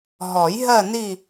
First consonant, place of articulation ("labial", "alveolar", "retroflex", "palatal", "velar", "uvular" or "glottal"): glottal